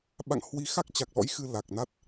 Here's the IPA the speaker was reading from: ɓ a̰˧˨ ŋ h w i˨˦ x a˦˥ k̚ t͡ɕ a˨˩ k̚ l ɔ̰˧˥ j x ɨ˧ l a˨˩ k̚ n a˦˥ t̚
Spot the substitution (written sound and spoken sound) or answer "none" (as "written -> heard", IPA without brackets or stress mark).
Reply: none